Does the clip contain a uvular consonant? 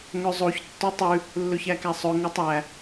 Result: no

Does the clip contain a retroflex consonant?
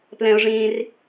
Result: yes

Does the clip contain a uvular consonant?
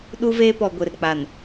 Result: no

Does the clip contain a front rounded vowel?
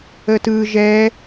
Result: no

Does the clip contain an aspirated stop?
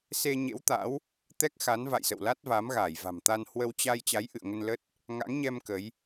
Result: no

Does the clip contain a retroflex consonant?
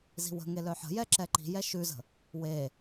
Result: no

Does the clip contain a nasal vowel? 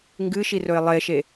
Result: no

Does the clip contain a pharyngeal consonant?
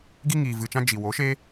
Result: no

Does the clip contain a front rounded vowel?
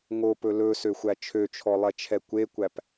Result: yes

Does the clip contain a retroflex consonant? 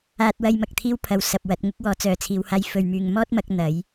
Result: no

